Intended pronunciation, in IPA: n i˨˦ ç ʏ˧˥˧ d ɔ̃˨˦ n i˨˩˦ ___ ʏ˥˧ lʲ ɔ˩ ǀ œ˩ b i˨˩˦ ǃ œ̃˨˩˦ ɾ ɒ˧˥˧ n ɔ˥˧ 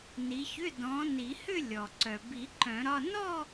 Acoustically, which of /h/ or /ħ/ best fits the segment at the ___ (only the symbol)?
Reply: h